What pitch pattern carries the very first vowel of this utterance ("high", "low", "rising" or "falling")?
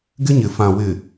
high